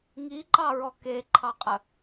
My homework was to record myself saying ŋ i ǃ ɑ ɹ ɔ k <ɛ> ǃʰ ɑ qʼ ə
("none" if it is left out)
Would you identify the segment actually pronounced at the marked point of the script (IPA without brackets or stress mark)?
e